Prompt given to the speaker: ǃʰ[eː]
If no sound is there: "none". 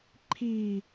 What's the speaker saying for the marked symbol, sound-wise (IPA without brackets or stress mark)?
iː